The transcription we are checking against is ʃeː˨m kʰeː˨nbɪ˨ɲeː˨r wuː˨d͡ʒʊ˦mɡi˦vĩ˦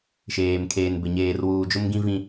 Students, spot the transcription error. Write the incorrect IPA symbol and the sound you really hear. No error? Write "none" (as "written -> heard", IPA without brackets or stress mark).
i˦ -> ĩ˦